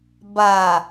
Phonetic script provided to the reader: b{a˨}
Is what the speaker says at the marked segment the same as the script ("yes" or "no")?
yes